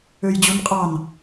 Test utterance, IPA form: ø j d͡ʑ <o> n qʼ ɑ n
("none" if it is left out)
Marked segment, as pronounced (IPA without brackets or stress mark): u